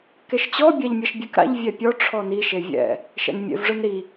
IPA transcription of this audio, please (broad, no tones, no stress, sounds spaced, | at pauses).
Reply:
k e ʃ t͡ɕ ɔ bʲ a ʎ mʲ ɐ ʃ bʲ e k ɾ a̰ ʎ vʲ ɛ pʲ ɔ ʈ͡ʂʰ ɔ n i ʃ e vʲ ɛ̰ | ʃ ɛ̰ n mʲ ḛ v ʐ ɯ n ɾ i